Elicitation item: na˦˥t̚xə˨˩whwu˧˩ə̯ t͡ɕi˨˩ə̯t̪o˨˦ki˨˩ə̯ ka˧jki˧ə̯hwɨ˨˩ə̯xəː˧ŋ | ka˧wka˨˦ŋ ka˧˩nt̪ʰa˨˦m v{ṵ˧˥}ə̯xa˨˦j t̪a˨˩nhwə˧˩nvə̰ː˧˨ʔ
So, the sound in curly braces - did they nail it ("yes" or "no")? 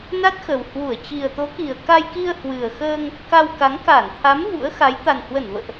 yes